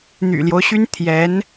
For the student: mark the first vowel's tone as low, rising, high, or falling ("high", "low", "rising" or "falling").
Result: low